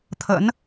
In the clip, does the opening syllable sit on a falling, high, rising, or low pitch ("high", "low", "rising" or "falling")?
rising